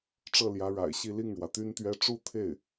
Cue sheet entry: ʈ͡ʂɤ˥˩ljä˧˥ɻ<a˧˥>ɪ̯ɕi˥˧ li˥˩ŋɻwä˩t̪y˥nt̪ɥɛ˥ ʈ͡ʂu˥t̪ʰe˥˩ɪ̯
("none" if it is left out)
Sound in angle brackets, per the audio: a̰˨˩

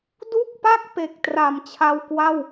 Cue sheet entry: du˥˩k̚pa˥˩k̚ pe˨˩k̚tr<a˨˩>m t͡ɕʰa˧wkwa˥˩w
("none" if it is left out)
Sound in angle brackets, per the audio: a˨˩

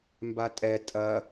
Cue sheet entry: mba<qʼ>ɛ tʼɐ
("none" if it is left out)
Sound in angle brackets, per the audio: tʼ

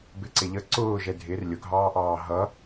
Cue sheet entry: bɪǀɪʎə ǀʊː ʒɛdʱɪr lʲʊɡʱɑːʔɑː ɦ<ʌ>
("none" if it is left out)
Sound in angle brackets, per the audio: ʌ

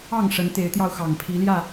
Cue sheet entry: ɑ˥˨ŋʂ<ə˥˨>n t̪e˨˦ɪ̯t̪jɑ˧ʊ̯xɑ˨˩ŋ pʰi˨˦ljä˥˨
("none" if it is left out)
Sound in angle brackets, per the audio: ə˨˦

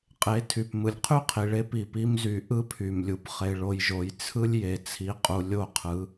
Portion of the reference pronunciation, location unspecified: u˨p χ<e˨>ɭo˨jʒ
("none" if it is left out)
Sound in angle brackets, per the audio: e˨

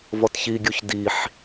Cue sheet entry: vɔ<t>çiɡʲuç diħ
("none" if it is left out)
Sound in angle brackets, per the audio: t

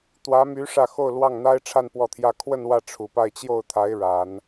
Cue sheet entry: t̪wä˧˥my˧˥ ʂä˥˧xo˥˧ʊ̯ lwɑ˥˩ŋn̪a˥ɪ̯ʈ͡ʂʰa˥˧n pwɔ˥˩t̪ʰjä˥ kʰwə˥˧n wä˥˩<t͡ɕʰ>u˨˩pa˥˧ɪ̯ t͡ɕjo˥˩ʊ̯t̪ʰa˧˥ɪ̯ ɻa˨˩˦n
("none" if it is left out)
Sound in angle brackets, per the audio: ʈ͡ʂʰ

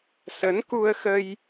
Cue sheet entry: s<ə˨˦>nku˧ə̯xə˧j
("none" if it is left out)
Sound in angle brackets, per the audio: ə˨˦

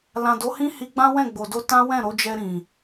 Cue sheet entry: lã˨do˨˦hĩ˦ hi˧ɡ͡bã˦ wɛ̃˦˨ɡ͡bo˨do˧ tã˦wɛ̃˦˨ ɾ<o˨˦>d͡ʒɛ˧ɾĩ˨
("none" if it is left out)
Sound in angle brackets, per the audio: o˨˦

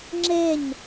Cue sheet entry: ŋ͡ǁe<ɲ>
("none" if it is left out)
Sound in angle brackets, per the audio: ɲ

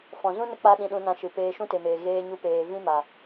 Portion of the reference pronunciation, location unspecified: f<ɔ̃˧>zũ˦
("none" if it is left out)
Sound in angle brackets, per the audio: ɔ̃˨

